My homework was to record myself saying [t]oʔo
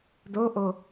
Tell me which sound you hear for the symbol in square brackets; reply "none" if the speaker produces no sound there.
d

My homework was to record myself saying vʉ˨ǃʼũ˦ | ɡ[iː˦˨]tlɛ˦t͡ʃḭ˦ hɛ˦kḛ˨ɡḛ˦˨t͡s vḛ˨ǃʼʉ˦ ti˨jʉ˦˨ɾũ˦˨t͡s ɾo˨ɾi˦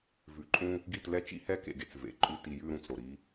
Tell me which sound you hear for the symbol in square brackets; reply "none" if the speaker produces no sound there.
i˦˨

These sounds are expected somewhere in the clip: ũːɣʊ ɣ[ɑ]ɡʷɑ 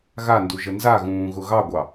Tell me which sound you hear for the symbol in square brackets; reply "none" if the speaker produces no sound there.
ɑ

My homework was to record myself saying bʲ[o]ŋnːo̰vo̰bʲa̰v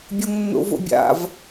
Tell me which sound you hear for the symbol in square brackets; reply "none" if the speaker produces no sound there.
o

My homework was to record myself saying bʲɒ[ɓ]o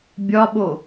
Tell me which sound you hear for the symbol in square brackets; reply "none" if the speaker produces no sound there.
ɓ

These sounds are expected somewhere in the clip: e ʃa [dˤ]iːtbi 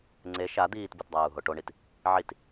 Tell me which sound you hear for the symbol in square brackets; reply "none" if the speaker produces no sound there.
d̪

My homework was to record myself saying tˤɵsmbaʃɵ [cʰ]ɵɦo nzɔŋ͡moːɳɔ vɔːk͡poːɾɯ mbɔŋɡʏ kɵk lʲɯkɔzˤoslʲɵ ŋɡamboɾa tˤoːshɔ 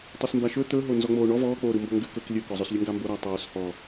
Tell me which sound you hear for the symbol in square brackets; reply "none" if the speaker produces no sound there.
t̪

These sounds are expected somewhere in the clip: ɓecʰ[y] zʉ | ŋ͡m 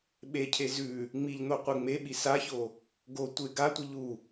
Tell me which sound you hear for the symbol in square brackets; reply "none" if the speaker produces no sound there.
e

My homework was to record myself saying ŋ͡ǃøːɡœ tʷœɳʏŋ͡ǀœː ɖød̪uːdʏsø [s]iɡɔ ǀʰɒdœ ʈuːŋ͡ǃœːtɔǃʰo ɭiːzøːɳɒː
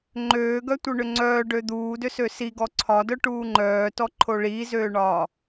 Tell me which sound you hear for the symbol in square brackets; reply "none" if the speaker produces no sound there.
s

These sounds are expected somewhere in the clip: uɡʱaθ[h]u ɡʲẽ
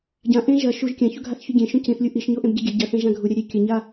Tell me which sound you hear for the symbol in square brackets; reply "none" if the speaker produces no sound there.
ç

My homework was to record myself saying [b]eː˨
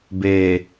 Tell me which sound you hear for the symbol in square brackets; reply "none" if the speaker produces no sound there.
b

